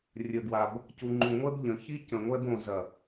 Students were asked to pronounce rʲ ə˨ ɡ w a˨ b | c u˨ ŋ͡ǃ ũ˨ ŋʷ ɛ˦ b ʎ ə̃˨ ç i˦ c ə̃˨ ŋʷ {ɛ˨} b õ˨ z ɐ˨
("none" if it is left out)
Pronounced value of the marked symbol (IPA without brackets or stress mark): ɛ˦